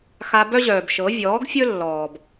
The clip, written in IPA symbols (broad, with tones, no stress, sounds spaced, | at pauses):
x a˧ b œ˦ ʑ œː˨ b ʃ ɤ˨˦ vʲ ɔː˨˦ ɡ fʲ ɵ˦ lː ɔː˨ b